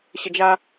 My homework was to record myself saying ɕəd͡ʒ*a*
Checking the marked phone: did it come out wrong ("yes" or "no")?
no